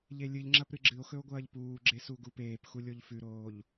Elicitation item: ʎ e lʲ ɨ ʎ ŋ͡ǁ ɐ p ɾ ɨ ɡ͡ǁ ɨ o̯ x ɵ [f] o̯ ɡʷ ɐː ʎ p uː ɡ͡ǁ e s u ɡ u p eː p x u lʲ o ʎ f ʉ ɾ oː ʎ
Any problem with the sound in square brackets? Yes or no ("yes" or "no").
yes